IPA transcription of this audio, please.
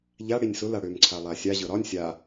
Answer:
ʎa ɽinʲsʊla ɽømǀʰalˠa sʲa ʑɤɾɒnʲ sʲa

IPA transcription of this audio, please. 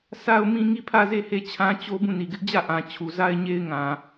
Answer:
sa˦ʊ̯mĩ˦ ŋi˦˨pʰä˦˨ze˦˨he˦˨ t͡ɕʰã˦t͡ɕo˦ bũ˦˨ni˨ɡɪ˦ʔ d͡ʑä˦˨ʔã˨ t͡ɕʰu˨za˦ɪ̯ɲe˦ɪ̯ŋã˨

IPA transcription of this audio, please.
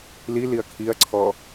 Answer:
liliɐ̯ kʰiɐ̯ǀʰɔ

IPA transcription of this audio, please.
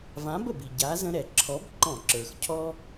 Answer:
vã˨˥bə˩bi˩ ɟa˨˥zə̃˦ ɾɛ˩ǁʰɔ˨˥b ǃɔ̃˧˩˧ǁə˞˩xcʰɔ˦

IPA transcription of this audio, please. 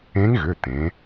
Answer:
ẽ˧˥ŋɣʏ˩˧˩ t̪ẽ˩˧

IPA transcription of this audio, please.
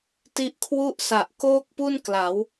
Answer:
ti˦˥ʔkʰwu˥˩ʔsa˨˩ʔ koː˥˩k̚pu˥˩nkla˩˦w

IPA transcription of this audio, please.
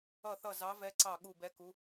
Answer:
ʌ˧˩θʌ˧˩ zɑ˨˦vɛ˨˦ǀɑ˧˩ ɠu˧˩bɛ˨˦ku˨˦

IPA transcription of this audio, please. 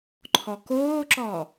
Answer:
ǃʰɔkoːǁɔ

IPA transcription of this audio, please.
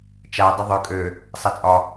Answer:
t͡ʃa dˤɪðˤø kʼø | sˤat͡sʼɒ

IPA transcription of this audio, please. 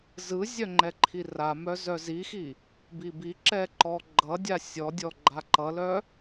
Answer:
zɯzʲœ ŋ͡ǃɛǃʰiramœ zœzixi | bibiǁɛ ǃɔɡ͡ǃʌdʲa sʲɔdʲɔ ɡ͡ǃaǃʌlœ

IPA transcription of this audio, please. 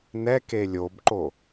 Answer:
nɛke lʲobǃo

